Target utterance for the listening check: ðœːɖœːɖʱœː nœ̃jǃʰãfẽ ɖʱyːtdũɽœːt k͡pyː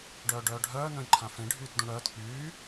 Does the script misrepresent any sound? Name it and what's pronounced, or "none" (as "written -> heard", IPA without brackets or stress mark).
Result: ð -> ɖ